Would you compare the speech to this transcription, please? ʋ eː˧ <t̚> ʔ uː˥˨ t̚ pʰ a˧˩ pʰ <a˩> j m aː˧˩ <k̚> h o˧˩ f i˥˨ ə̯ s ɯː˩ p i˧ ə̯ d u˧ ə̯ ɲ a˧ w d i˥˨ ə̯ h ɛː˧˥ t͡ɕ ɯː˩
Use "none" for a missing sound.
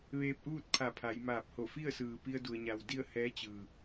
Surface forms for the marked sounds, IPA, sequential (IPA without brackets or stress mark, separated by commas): p̚, a˩˧, p̚